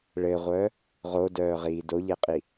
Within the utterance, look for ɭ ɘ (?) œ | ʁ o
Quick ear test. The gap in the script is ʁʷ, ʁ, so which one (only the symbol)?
ʁʷ